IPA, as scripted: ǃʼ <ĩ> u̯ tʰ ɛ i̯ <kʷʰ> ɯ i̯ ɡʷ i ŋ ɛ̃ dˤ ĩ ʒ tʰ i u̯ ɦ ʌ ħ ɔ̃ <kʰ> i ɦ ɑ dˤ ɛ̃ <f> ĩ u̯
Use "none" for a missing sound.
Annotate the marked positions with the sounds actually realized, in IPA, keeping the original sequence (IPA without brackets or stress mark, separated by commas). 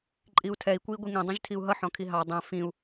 i, kʷ, kʰ, f